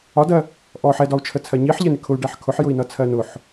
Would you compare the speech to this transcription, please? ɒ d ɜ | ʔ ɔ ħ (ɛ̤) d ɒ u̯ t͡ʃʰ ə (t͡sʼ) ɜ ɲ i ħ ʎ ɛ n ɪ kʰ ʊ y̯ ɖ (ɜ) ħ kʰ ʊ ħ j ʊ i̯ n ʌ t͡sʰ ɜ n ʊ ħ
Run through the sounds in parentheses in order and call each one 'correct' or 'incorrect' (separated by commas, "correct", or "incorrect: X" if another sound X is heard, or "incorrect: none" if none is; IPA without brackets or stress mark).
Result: incorrect: ɛ, incorrect: t͡sʰ, incorrect: æ